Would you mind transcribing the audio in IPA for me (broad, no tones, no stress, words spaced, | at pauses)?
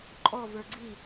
ǃʼɔ və˞ɡ͡ǀi